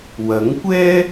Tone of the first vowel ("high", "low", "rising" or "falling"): rising